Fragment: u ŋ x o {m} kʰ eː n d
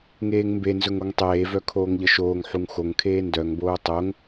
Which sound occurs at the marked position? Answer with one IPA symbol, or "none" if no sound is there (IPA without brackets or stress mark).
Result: ŋ